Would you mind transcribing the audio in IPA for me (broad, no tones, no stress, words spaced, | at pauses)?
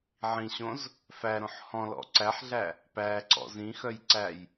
ʕĩɕõz | fæɾõħ hɔ̃ lɔ̰ǀæħɮæ | pæǀɔ̰z ĩxœjǀæj